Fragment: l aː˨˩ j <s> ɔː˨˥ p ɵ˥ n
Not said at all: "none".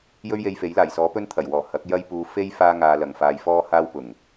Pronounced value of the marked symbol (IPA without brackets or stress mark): s